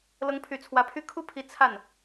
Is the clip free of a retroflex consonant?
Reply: yes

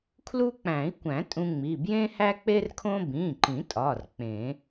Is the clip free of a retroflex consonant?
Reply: yes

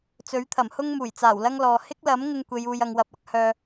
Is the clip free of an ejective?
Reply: yes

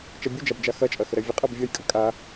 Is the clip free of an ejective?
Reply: no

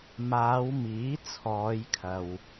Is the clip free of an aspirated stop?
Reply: no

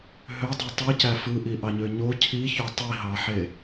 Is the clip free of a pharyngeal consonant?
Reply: no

